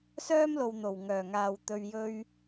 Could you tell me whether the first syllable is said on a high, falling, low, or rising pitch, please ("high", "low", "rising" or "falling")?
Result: high